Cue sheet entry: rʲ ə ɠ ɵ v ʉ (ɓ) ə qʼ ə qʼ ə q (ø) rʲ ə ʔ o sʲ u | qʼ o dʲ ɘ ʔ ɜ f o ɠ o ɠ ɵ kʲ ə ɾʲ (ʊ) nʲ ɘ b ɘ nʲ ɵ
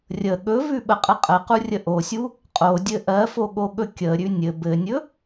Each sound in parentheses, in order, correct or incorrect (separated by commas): correct, incorrect, incorrect